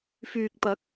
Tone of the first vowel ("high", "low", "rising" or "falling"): low